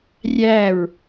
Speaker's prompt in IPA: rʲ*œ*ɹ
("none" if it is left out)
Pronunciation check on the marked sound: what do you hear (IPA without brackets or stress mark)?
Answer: æ